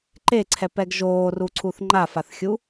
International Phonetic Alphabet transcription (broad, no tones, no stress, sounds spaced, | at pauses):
ǃ e ǀʰ ɛ p ɛ ɡ ʒ oː r u ǀʰ u θ ŋ͡ǃ a f a θ xʲ u